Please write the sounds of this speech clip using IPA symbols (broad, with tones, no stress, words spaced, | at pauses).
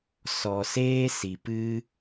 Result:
sɔ˨seː˦si˨pɨ˦